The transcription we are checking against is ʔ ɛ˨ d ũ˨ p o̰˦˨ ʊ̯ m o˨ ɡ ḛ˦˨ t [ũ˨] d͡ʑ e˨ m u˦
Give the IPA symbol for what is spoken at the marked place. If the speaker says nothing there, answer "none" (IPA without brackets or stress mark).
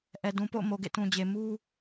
ũ˨